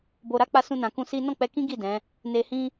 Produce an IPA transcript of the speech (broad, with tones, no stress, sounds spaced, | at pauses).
b o˧ ɾ a˦ k͡p a˧ s ũ˧ n ã˨ k ũ˧ s i˦ n ɔ̃˦˨ k͡p ɛ˧ k ĩ˦ ɡ i˦˨ d ɛ̃˨˦ | n e˧ h ĩ˦